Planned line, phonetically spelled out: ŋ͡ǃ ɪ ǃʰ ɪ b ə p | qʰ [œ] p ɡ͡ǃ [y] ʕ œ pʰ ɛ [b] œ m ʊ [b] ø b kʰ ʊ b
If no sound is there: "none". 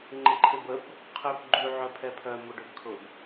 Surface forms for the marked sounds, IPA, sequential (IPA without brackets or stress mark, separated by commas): ø, y, pʰ, ɖ